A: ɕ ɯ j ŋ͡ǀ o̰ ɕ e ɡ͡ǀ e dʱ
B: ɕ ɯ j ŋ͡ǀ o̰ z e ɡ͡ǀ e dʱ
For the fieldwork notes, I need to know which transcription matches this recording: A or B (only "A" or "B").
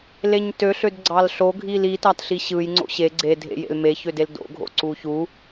A